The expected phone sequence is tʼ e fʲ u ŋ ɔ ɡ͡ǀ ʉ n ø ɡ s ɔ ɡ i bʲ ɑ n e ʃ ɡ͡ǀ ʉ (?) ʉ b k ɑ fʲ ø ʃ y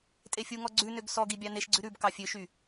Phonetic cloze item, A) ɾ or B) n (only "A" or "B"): A